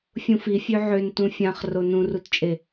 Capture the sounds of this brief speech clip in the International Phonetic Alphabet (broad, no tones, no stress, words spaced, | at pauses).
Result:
fʲũfi fʲøʕøntũ fʲãχ ronũrutt͡ʃʼe